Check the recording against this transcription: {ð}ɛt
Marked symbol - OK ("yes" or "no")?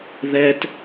yes